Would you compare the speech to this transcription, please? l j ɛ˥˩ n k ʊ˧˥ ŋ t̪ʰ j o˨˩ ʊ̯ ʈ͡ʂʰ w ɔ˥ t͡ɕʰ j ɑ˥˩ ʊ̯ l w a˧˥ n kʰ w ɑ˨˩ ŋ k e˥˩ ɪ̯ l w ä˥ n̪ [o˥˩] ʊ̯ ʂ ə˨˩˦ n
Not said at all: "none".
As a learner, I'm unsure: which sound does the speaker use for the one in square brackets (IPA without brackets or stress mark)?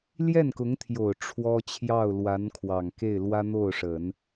o˥˩